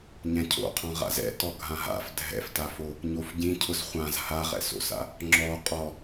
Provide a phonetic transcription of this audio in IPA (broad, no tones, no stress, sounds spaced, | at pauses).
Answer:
ɲ ɛ̃ cʰ o̰ qʰ ɔ̃ ʁ a̰ z ɛ̰ t ɔ ɡʱ ã ɦ a̰ f dʱ ɛ̰ f t a f o | ɲ o f ɟ ĩ cʰ ʊ z χʷ ã z h a ʁ ɛ̰ s o̰ s a̰ | ŋ͡ǁ ɔ qʼ ɔ